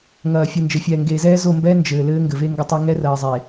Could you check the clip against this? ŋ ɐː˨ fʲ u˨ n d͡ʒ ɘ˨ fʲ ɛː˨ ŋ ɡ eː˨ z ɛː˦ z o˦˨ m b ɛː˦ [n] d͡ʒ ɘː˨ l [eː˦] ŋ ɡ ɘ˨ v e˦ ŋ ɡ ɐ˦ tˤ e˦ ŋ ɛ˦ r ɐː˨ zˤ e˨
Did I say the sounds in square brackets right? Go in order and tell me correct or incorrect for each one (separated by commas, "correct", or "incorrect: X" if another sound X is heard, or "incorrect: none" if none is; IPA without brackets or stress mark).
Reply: correct, incorrect: ɘː˦